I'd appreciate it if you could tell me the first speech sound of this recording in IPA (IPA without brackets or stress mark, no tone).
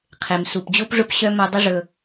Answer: qʰ